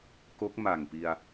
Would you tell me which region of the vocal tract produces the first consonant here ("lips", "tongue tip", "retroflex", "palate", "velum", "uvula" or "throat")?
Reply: velum